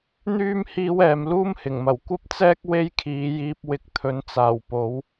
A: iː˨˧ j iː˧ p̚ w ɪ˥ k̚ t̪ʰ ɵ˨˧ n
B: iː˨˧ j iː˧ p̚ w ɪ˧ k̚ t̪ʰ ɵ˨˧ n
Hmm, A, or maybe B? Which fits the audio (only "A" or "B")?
B